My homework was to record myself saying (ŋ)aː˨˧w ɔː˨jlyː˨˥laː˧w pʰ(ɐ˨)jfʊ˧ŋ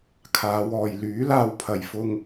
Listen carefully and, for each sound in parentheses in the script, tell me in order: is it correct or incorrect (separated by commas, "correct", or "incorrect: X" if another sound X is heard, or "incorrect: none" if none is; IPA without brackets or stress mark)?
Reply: incorrect: kʰ, correct